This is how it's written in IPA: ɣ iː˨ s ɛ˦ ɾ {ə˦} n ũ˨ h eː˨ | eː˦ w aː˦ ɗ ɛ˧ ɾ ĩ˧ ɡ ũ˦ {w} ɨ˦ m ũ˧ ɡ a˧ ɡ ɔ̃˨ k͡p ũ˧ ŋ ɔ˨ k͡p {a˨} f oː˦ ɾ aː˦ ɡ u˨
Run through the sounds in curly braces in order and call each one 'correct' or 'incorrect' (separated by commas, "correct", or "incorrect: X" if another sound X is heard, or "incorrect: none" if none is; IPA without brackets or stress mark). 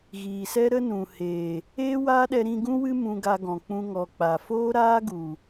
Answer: correct, correct, correct